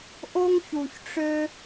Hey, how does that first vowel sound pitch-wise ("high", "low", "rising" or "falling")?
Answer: high